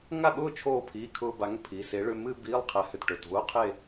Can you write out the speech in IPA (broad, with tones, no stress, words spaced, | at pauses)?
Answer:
ŋa˥˩ɠʊː˥˧ t͡ʃʰoː˧pʰiː˩˧˩ kʰʊː˧ba˨˥ŋ pʰi˩˧˩se˨˥ɭʏ˧˥˧ mɨː˧ biː˧˥˧lˠqʰɛ˨˥hʏ˧tʈʊ˩˧˩t vʊː˧˥˧qʰe˥˧